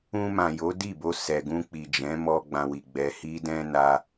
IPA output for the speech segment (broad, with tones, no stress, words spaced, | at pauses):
ũ˧mã˨ jo˨˦di˦˨bo˧ sɛ˨ɡũ˧k͡pi˨ d͡ʒɛ̃˨˦mɔ˧ ɡ͡bã˧wi˨ɡ͡bɛ˧ hi˦dɛ̃˦ na˦